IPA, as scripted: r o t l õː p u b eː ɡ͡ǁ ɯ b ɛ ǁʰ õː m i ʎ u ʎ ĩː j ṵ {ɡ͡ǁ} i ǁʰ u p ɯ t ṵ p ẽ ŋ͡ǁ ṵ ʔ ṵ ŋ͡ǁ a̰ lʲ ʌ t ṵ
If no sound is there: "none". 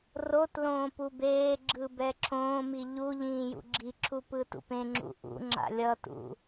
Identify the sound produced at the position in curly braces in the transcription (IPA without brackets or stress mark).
ɡ͡ǁ